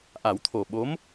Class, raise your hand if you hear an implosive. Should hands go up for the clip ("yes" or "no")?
yes